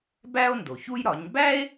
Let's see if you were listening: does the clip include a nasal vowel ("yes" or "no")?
no